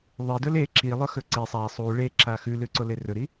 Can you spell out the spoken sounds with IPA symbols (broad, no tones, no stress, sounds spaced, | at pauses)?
ðˤ e d ɵ l e ǁ i lˠ ɵ x ɵ ǀ i sˤ a sˤ u ɭ e ǁ a x ʉ l ʉ ǀ o l e r ɵ ɾ i